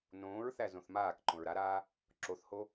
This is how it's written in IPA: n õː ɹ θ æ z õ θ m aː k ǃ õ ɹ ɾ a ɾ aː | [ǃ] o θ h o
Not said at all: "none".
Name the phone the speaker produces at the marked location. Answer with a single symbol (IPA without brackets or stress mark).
ǁ